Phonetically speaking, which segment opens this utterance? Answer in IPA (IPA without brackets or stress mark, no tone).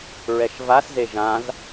ɹ